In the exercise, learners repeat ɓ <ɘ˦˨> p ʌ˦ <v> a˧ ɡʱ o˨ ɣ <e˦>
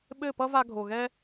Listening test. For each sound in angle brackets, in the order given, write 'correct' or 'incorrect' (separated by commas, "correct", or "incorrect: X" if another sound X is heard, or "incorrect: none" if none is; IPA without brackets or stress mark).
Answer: correct, correct, incorrect: ɛ˦